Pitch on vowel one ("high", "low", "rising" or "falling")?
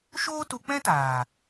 high